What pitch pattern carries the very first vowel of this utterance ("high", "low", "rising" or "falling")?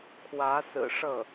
rising